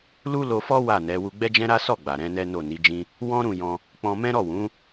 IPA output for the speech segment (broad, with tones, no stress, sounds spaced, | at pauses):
l u˦ l o˧ f ɔ˦ w a˦˨ n ɛ˨˦ w u˧ ɡ͡b ɛ˦ d͡ʒ ɛ̃˦ ɾ a˦ s ɔ˦˨ ɡ͡b a˨ ɾ ɛ̃˨˦ n ɛ˦ n o˦˨ n i˨˦ d͡ʒ ĩ˦ | w ɔ̃˦ ɾ ũ˦˨ j ɔ̃˧ | k͡p ɔ̃˧ m ɛ̃˦ ɾ ɔ˦˨ w ũ˨˦